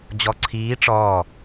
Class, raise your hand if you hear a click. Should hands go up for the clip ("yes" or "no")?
yes